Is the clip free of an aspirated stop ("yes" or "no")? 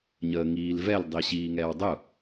yes